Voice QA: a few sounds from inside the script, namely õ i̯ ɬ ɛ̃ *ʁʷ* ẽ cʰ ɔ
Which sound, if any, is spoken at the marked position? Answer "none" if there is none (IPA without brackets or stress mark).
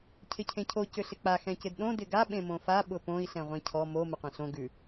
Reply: ʁʷ